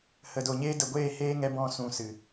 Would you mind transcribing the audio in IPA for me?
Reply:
h ə˨ d o˨ ɲ eː˦ d ə˨ ɡʷ eː˦˨ h eː˦ ŋ ɛ˧ b ɔ̃˦ s ũ˧ s ɨ˨

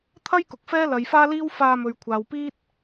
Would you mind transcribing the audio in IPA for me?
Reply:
t̪ʰ ɐ˥ j k ʊ˨ k̚ f ɛː˥ l ɐ˨˧ j f aː˥ l iː˥ w f aː˧ m ɵ˨ ɥ kʷʰ aː˨ w p iː˥ t̚

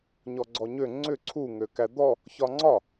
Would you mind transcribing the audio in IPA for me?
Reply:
ɲ ɔ ɡ͡ǀ ɔ ɲ ø ŋ͡ǀ ʏ ǀʰ u ŋ ø k æ d̪ ɔ | ç ɒ ŋ͡ǀ ɒ

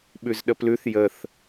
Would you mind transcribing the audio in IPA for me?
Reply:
ɓ ʉ z ɗ ə p l ʉ θ j ə θ

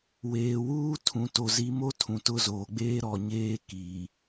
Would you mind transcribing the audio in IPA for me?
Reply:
w eː˨ w uː˦ tʰ ũ˨ t o˨ z i˨˦ m o˦ tʰ ũ˨ t ʊ˦˨ z oː˨ ɡ͡b eː˦ ɾ ɔ˨ ɲ eː˦ k iː˨

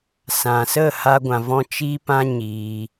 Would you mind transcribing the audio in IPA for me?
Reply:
s ã˨ s ə˦˨ h a˦ ɡʷ ã˧ v ɔ̃˦ t͡ʃ iː˦ p ã˦ ɲ iː˧

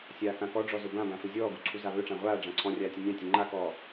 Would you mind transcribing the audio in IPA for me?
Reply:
sʲ aː k ã k ɔ ɖ͡ʐ ɔ z ɵ b ã b ã f ɵ zʲ ɔː ɡ u ǀʰ u z a β ɵ ʈ͡ʂ ã ʁʷ aː ɖ͡ʐ ã ǀʰ ɔ̃ rʲ aː tʲ ɵ nʲ ã tʲ ɵ ŋ͡ǃ a k ɔː

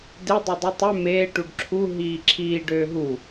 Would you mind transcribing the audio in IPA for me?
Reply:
d e dˤ ø dˤ u tˤ ø m eː ʈ u ɖ ǁʰ u ɦ iː ǁʰ iː ɖ øː ɦ u

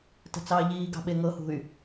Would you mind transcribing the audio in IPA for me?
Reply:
t ə̤ t͡s ɑː ʎ iː ɡ ɑ̤ ɓ e ŋ ɤ h ṳ y̯

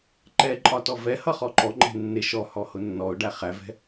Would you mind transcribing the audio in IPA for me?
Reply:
ǃ ɛ ǃʼ ɒ t ɔ v ɛ h ʌ χ ɔ ǃ ɔ ŋ͡ǃ ɛ̤ nː ɪ ʃ ɔ h ɔ h ʊ nː ɔ ʊ̯ ɖ æ χ æ v ɛ̤

